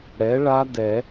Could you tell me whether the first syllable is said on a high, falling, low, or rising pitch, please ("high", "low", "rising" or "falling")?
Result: rising